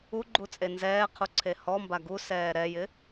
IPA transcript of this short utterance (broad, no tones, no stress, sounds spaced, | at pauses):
u ɡ͡ǃ u t͡sʼ e n z ɛː qʰ u ǀʰ e h ɔ m b a ɡ u s ɛː ɾ ɛ j ɪ